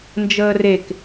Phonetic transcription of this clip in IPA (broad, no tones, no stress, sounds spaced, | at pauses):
n d͡ʒ əː r e k